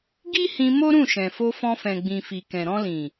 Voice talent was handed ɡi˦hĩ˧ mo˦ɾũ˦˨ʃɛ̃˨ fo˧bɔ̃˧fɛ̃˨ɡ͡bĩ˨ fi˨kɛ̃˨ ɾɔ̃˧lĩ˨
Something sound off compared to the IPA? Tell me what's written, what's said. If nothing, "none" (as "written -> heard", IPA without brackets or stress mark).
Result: b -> f